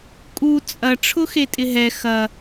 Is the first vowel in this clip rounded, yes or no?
yes